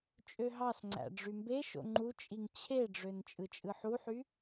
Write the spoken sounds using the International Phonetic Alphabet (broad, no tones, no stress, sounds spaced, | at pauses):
t͡ʃʼ ø ɦ ɑ s ŋ͡ǀ æ̰ ɖ͡ʐ y m b e ʃ o̰ ŋ͡ǃ u t͡ʃʼ i ŋ t͡ɕʰ e ɖ͡ʐ ø n t͡ʃʼ ɯ t͡ʃʼ ɯ ħ u ħ y